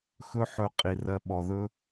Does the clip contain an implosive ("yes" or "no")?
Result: yes